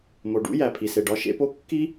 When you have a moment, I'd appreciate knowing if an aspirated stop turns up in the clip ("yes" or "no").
yes